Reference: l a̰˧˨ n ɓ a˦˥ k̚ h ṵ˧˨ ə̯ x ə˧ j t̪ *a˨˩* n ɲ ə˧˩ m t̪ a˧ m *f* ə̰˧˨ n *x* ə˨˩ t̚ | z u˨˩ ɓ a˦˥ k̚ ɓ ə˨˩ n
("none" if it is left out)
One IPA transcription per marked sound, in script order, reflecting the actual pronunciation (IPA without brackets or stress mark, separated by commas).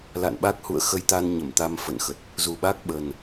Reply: a˧, f, x